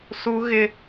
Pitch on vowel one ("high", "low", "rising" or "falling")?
high